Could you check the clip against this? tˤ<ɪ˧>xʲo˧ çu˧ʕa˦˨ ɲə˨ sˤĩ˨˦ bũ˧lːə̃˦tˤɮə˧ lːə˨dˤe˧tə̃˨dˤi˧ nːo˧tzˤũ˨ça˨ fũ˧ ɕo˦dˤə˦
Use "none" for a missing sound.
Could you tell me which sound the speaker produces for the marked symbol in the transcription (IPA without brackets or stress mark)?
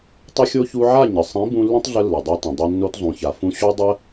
ɪ˧